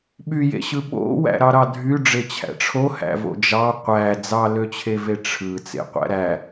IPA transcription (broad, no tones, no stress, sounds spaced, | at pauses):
ɓ y j ḛ ɕ ɯ ɓ o̰ w æ̰ ɾ ɑ ɾ ɑ dʱ y ɖ͡ʐ e t͡ɕʰ æ̰ ʈ͡ʂʰ o h æ̰ v o̰ d͡ʒ ɑ qʷ æ d͡z ɑ l ø t͡ɕʰ e v e ʈ͡ʂʰ ɯ t͡s ḛ qʷ æ̰ ɾ æ